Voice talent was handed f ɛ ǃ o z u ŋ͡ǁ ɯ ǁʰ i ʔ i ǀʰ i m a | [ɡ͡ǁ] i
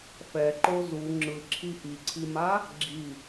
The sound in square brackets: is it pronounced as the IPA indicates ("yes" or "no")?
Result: yes